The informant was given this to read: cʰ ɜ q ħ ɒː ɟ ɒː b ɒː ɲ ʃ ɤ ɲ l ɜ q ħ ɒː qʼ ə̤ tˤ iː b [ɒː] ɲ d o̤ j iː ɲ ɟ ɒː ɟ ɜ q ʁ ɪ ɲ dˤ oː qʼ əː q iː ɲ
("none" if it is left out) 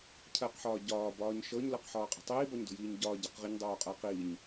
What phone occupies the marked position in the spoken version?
ɒ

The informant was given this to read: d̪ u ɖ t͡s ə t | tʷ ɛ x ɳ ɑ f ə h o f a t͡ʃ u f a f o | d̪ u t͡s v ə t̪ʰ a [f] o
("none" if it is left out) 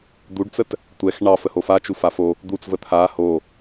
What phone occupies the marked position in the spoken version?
h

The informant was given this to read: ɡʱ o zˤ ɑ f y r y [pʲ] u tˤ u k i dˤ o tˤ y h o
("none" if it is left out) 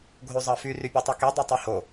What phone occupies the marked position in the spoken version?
pʲ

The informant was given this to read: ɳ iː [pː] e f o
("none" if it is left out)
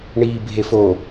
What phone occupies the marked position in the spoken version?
bʱ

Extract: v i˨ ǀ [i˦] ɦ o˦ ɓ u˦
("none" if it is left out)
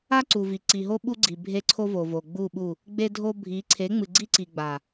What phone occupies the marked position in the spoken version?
i˨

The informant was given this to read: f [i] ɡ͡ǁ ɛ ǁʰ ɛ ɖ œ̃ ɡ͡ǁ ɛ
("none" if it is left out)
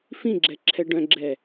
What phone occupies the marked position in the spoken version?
ĩ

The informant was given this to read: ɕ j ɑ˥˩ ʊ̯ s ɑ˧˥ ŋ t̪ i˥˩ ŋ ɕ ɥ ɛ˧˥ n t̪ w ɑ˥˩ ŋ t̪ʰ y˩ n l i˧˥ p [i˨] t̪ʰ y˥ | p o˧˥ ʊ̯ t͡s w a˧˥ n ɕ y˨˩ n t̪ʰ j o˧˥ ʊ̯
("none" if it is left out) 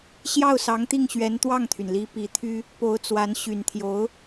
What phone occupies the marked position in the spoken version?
i˧˥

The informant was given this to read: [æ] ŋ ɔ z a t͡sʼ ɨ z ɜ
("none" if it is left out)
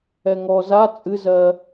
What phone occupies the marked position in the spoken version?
ɛ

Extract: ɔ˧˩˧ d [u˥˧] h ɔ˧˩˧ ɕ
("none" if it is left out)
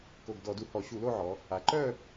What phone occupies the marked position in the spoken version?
u˨˩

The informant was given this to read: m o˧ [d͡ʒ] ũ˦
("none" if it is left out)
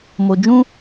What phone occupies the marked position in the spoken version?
d͡ʒ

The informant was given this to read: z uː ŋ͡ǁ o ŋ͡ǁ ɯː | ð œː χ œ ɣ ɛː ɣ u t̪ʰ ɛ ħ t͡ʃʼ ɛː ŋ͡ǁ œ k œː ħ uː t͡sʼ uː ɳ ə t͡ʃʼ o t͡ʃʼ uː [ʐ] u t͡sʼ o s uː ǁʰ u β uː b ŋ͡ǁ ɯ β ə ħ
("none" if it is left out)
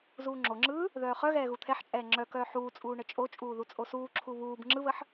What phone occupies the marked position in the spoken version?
ð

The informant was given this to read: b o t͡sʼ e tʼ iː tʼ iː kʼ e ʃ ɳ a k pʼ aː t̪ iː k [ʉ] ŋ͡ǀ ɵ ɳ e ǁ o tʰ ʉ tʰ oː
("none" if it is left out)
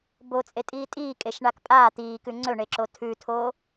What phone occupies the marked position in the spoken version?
ʉ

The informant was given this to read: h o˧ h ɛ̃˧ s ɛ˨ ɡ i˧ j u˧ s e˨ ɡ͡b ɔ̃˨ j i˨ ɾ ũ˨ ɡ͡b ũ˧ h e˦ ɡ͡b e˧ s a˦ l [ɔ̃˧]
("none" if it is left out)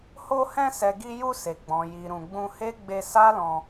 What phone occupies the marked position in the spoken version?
ɔ̃˧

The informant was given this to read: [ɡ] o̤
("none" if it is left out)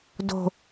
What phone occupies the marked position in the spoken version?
d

